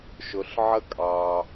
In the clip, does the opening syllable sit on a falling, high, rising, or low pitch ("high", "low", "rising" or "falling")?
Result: low